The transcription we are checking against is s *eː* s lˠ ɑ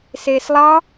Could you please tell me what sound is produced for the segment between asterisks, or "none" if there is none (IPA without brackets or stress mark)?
eː